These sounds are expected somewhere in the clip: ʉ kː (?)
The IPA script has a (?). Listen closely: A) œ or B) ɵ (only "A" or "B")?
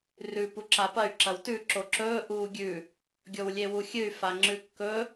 B